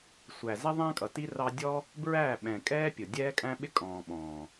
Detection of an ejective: present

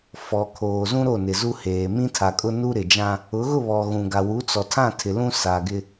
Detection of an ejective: present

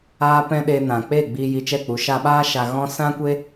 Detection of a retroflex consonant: absent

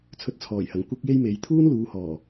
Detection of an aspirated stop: present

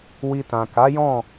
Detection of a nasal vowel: present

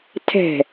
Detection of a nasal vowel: absent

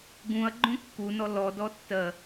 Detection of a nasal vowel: present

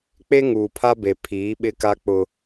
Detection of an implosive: present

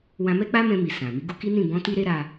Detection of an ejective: absent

